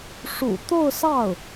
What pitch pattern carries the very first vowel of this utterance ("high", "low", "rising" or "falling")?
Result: low